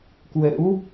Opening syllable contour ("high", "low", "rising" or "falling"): rising